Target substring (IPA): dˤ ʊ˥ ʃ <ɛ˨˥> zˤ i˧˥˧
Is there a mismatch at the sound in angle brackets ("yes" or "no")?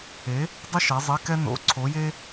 no